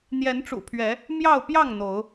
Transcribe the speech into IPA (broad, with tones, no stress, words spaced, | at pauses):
n̪jɛ˨˦nʈ͡ʂṵ˨˩pʰɥɛ˨˦ | mjɑ˥˨ʊ̯ pjɑ˥˨ŋ n̪o˨˦ʊ̯